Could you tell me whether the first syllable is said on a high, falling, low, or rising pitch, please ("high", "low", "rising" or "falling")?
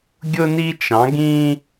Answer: high